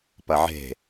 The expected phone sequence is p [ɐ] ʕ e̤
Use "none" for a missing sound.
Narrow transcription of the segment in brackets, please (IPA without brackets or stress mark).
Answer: ɐ